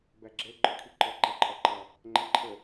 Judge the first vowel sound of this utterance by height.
low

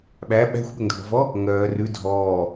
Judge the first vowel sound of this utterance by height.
low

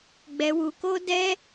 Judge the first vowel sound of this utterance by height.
mid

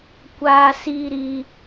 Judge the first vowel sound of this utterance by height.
low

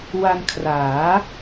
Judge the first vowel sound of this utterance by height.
low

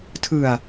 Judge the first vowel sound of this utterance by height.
high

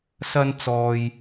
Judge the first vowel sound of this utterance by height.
low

